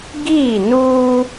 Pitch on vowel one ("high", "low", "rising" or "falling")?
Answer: falling